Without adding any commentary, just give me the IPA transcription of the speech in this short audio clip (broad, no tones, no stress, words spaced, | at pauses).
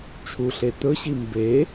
t͡ʃʰuɬe t̪ɵɕi mbe